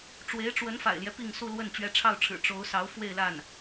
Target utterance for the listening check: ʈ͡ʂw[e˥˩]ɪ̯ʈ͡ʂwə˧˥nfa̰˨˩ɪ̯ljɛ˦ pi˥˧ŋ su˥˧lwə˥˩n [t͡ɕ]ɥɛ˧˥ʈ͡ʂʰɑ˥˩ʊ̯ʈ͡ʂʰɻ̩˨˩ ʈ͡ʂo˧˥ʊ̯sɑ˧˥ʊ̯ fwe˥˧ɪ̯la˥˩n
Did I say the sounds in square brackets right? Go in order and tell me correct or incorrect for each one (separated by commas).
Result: incorrect, correct